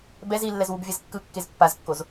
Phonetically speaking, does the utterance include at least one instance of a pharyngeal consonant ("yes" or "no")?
no